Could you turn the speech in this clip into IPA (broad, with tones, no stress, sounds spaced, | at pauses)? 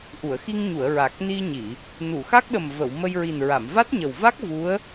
ʔ u˨˩˨ ə̯ x i˧ ŋ ɲ u˨˩˨ ə̯ ɹ a˨˩ k̚ n i˧ ɲ i˨˩˨ | n u˨˩˨ x a˦˥ k̚ ɗ ə˨˩ m v ə˨˩˨ w m ə˧ j ɹ i˨˩ n ɹ a˨˩˨ m v a˦˥ t̚ ɲ ə˨˩ w v a˦˥ k̚ v u˧˥ ə̯